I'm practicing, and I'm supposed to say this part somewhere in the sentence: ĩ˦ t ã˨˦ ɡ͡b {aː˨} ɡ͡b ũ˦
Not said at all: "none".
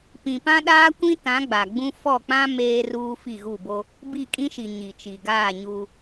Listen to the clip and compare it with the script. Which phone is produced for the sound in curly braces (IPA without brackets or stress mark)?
a˨